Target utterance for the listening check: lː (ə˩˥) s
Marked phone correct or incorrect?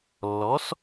incorrect